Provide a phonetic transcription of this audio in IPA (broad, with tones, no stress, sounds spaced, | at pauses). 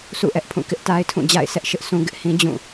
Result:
sʰ ṵ˦˨ ʔ ɛ˦ ʔ pʰ ũ˦˨ k ɪ˦ ʔ t a˦ ɪ̯ tʰ ũ˦˨ d͡ʑ a̰˦˨ ɪ̯ s ɛ˦ ʔ ʃ ɪ˦ ʔ sʰ ũ˦ ɡ ɪ˦ ʔ h ĩ˦ d͡ʑ ũ˦˨